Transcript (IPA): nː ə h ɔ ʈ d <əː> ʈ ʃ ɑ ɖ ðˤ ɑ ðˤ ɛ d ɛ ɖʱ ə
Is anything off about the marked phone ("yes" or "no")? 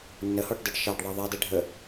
no